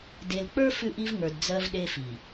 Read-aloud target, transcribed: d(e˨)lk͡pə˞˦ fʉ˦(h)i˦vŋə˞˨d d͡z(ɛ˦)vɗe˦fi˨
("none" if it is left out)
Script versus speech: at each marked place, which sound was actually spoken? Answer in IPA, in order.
e˨, ʔ, ɜ˦

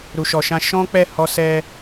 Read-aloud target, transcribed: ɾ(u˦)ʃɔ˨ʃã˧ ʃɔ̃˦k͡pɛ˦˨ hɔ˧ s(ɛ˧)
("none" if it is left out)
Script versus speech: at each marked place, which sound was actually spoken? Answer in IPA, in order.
u˨, ɛ˧

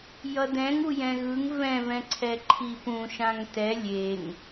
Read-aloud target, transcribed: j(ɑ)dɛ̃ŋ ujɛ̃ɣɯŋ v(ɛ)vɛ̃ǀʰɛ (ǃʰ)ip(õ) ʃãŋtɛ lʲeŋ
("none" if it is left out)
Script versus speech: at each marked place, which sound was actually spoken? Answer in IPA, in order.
ʌ, ɛ̃, ǃʰ, ũ

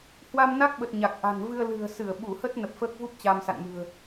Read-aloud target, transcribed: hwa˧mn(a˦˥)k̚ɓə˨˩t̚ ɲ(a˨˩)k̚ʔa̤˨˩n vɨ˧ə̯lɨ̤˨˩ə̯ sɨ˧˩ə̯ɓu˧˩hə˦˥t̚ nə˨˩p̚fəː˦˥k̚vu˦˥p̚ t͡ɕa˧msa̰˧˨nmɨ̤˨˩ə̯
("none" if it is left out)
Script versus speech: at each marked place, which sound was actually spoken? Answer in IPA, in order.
a˦˥, a˨˩

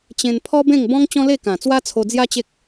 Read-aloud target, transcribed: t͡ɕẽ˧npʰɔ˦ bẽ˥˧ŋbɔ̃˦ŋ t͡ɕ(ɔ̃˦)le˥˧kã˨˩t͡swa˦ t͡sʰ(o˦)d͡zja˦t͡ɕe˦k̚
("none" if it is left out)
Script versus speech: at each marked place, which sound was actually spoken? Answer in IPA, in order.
ɔ̃˦, o˧

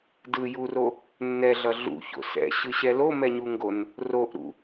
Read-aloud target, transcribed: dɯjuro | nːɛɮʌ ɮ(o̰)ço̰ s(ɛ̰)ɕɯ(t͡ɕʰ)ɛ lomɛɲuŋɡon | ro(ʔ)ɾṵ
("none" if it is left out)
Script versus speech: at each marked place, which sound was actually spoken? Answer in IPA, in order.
ṵ, ɛ̰, ɕ, ʔ

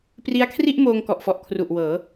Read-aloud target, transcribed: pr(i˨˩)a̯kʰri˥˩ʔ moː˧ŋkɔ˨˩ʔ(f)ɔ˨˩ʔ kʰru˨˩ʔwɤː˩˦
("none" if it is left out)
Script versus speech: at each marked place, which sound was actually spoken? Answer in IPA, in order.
i˦˥, f

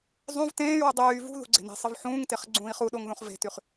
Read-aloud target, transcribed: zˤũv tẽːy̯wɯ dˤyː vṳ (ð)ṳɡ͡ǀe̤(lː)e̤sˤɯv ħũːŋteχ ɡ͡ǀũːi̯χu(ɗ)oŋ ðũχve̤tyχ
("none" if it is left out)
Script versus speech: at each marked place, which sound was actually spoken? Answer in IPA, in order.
ð, n, ɗ

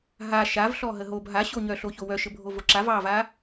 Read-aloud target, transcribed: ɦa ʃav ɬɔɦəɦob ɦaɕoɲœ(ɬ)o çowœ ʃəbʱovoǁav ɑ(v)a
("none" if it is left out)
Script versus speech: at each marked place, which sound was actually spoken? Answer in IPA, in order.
ɬ, v

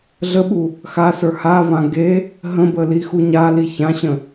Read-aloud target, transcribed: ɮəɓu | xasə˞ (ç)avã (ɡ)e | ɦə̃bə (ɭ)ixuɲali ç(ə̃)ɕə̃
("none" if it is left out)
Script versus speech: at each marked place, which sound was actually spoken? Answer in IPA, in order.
h, ɡ, l, ã

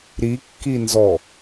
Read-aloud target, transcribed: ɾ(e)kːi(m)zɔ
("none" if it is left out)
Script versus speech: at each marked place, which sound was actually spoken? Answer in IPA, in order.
i, n

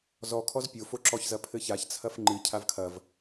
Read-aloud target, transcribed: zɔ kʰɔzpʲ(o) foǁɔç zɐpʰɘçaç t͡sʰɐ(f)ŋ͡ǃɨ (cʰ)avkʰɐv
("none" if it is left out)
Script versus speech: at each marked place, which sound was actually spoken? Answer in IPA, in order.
o, f, cʰ

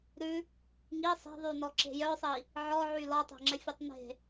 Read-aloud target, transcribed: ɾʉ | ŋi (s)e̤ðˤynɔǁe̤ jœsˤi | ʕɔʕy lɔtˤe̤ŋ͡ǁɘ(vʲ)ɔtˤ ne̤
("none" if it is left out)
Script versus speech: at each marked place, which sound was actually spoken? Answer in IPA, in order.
sˤ, fʲ

